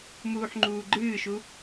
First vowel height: high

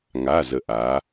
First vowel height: low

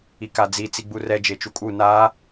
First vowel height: high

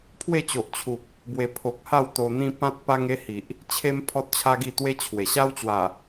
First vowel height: mid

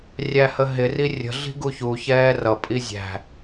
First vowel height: low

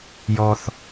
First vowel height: mid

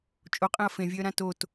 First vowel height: mid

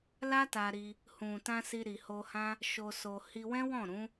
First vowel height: low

